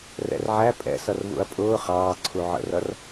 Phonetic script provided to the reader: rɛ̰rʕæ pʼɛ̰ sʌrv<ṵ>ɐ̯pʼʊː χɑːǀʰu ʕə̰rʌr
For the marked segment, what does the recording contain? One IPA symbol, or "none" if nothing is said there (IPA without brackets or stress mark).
ṵ